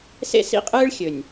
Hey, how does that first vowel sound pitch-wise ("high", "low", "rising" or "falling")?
high